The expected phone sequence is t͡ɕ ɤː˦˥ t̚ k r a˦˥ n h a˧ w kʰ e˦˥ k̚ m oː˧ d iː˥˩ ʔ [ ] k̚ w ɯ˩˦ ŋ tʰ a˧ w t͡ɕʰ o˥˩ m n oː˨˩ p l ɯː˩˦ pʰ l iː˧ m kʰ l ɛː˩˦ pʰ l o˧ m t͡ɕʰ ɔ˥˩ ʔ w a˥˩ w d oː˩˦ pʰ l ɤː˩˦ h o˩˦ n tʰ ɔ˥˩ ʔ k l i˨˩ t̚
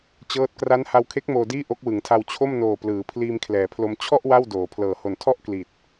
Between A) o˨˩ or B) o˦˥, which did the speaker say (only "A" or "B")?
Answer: B